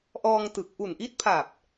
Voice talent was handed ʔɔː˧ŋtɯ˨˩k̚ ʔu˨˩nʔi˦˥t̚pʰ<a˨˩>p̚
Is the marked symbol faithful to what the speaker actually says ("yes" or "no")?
yes